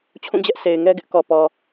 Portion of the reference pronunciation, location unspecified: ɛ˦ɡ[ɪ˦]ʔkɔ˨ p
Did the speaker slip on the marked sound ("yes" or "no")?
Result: no